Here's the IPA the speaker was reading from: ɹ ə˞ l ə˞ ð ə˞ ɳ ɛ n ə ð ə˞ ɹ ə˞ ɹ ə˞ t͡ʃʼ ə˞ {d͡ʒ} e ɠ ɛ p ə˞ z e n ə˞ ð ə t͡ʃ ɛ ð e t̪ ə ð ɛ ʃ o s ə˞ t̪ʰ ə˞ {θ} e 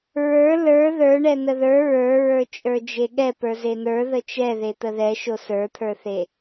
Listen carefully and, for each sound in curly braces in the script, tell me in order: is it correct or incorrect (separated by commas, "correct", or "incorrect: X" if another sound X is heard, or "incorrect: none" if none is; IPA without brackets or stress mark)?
correct, correct